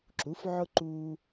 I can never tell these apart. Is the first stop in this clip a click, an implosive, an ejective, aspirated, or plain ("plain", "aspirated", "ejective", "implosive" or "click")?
click